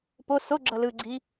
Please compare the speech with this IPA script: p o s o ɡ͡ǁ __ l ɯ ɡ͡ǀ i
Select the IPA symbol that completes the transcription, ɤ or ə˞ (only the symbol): ɤ